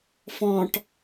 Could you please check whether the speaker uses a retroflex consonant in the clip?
yes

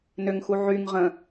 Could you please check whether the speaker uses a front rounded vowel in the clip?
yes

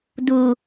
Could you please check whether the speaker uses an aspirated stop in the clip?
no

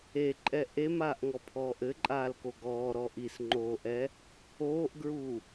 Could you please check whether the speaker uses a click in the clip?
yes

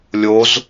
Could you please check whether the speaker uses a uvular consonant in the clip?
no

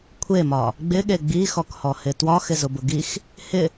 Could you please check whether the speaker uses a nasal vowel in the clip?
no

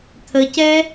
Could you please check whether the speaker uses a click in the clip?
no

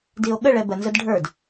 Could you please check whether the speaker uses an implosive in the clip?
yes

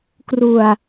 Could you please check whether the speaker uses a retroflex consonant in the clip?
no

